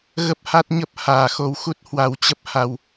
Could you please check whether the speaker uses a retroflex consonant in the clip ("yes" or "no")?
no